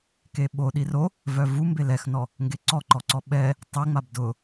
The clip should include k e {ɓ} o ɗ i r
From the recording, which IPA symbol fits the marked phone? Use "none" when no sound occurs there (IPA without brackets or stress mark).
ɓ